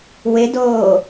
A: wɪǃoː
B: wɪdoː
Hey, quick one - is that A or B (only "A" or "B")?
B